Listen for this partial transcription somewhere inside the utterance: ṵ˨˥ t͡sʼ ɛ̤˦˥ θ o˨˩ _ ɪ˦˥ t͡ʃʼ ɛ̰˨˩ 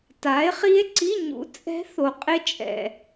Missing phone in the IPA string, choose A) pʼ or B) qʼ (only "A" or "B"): B